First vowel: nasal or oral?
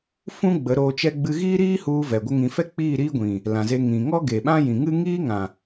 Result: nasal